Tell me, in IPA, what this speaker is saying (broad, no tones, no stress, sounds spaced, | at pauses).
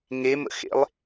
ŋ e m ə̰ x ḛ lˠ